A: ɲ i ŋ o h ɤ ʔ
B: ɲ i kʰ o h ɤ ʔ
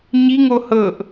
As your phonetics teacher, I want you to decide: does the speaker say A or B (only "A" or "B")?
A